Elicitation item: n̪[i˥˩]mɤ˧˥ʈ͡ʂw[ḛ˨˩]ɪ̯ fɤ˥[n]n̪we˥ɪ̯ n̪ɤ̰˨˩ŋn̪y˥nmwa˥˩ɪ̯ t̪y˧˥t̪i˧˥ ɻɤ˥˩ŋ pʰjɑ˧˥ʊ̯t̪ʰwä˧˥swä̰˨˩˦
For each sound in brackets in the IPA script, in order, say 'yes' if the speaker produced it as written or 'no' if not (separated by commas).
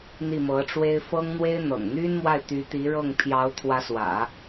yes, no, no